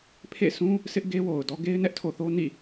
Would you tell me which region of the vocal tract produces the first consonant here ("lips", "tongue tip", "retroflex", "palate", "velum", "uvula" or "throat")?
lips